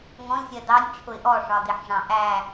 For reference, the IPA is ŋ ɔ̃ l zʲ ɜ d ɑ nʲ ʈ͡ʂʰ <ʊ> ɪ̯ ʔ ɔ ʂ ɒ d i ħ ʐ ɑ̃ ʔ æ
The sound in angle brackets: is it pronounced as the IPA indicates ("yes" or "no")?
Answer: yes